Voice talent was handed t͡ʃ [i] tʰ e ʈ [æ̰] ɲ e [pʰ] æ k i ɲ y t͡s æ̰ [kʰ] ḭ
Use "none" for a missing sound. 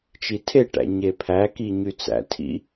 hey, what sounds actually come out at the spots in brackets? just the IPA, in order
i, æ̰, pʰ, tʰ

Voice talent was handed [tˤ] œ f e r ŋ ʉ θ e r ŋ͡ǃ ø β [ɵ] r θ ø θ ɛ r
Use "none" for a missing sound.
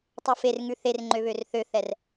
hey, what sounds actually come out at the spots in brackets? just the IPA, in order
tˤ, ø

